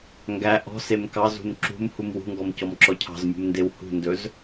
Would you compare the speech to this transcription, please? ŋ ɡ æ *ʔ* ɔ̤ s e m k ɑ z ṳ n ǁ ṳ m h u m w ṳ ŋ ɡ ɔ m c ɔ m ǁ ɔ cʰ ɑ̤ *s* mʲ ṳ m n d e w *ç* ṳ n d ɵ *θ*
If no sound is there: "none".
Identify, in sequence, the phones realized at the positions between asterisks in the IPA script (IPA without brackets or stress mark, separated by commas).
ʔ, z, h, z